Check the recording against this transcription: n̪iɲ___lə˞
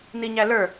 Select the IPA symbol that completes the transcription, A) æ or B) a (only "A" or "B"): A